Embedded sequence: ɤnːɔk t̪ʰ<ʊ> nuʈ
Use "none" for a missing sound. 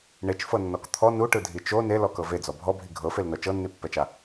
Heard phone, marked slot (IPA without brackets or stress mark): ɔ